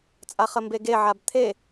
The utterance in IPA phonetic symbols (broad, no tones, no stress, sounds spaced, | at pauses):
t͡sʼ a χ ə m b e ɡ e ʕ a b t̪ʰ e